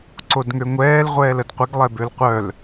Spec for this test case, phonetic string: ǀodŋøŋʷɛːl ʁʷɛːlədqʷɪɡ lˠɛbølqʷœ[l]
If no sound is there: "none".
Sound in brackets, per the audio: l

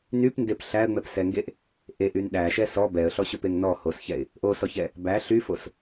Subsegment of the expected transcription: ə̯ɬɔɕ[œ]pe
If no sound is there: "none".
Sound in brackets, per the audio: ɵ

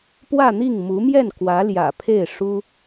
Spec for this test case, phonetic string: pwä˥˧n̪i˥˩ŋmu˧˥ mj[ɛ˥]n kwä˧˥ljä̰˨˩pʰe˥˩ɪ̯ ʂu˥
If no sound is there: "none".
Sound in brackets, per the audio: ɛ˥˩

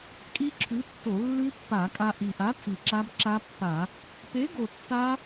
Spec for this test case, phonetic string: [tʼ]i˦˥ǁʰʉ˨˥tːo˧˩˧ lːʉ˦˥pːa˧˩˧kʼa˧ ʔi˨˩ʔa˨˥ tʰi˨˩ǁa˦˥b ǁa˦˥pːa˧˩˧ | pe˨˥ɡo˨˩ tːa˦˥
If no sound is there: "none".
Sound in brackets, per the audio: kʼ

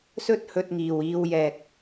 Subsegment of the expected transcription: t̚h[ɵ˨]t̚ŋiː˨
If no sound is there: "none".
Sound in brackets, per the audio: ɵ˧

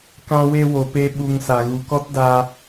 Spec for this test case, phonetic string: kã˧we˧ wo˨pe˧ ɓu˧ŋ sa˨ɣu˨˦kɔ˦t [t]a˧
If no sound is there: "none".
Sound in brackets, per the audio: d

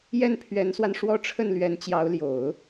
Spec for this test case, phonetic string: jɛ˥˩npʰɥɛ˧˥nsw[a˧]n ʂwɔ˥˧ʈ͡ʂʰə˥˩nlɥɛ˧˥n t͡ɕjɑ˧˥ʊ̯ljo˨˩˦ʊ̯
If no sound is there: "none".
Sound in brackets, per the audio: a˧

